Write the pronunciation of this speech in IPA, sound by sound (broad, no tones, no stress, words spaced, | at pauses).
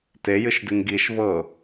tejɨʃdɨŋ ɡiʃ vɤ